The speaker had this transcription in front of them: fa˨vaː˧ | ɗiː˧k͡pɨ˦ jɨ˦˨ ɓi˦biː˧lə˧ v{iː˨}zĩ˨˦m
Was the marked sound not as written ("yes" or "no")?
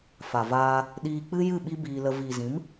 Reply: no